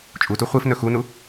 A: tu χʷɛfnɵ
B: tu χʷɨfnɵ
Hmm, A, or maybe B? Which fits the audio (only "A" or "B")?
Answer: B